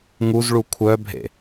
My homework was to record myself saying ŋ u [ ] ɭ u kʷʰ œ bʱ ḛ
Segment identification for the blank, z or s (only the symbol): z